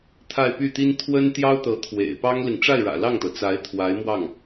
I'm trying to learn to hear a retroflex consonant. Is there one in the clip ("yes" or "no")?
yes